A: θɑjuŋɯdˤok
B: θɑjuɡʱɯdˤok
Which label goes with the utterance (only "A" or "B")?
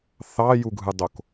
B